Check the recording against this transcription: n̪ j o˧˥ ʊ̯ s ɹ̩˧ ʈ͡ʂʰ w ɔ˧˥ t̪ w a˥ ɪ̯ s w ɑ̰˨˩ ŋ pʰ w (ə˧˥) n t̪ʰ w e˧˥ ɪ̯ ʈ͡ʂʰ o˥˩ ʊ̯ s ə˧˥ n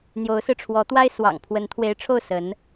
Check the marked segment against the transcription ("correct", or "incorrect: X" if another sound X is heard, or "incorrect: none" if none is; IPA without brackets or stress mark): correct